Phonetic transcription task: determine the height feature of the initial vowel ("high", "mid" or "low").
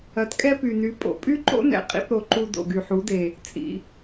low